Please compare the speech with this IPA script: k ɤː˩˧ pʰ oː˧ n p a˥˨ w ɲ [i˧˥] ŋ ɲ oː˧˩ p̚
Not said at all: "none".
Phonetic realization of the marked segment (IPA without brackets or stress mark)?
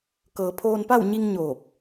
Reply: i˧